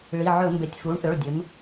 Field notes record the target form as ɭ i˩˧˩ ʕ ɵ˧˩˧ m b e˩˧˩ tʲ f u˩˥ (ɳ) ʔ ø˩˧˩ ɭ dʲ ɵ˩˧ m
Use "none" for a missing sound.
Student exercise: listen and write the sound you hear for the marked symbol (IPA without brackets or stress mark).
ɳ